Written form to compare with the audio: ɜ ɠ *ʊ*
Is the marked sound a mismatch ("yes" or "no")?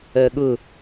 no